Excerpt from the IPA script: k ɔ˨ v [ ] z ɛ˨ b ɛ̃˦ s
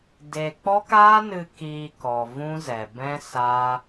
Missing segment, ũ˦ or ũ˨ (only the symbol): ũ˦